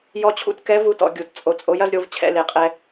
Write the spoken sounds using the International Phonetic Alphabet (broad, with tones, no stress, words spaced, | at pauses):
jɔ˥t͡ɕʰṵ˥t kɛ˧˥ vu˧˥tɔ̰˩˧ ɡʲu˩˧t t͡sʼo˧t͡sʼo˧˥j ɐ˥zɾʲo˧˥v t͡ɕʰɛ̰˩˧ le˩˧qʼɛ˧